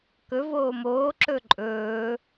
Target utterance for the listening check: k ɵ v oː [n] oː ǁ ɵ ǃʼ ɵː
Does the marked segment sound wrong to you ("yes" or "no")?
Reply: yes